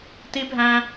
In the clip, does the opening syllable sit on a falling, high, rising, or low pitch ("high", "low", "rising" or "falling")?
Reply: high